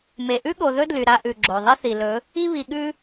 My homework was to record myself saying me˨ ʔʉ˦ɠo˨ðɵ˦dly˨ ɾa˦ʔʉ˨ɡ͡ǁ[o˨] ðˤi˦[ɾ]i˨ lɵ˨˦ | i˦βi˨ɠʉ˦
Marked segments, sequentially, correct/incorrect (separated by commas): correct, incorrect